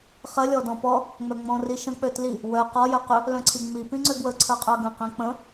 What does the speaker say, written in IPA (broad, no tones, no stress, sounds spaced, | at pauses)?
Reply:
χ ə lʲ ɔ d ɔ̃ p ɔ | ŋ͡m œ ŋ͡m ɔ̃ r i ʃ ə̃ k͡p ø t l i | w œ q ɔ j œ q ʏ | l œ̃ ǀʰ i ŋ͡m i p ĩ ŋ͡ǀ ø ɡ w ə ǀʰ ə˞ qʼ œ ɡ ə̃ q ĩ k͡p ə̃